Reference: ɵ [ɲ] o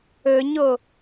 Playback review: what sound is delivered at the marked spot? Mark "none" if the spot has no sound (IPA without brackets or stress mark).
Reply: ɲ